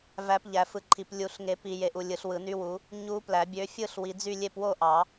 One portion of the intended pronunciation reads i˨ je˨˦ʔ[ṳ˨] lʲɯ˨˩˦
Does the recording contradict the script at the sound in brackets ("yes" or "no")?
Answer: yes